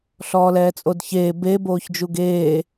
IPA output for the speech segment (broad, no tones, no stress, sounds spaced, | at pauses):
ɬ ɔː l ɛː t͡sʼ o d ç eː b e b oː ç d͡ʒ u ɡ eː